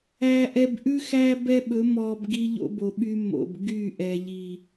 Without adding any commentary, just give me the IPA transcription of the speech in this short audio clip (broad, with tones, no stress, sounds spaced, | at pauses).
æ˨ ʔ ɛ˨ b ʔ ʉ˦ x æ˦ b ɛ˦ ɓ ɵ˨˦ m ɔ˨ b ɡ i˦ ʎ o̰˦ b o˨ ɓ y˦ m o̰˨ b ɡ y˦˨ ʔ ɛ˨ ʎ i˨